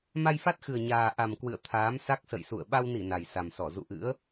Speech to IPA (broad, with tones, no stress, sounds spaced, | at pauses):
m a˧ j f a˦˥ t̚ x ɨ˨˩ ə̯ ɲ aː˨˩ ʔ a˨˩ m k w ɨ̰˧˨ ə̯ t̪ʰ aː˨˦ m s a˦˥ k̚ s ə̰˧˨ j s ṵ˧˨ ə̯ ɓ a˧ w n i˧˩ n a˨˩ j s a˨˩ m s ɔ˧˩ z ṵ˧˨ ʔ ɨ̰˧˥ ə̯